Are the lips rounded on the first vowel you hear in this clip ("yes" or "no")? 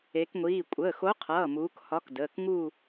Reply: no